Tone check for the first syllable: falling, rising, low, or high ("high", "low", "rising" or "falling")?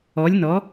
rising